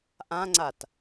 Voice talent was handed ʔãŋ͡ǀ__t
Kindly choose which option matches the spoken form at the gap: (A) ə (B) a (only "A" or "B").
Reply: B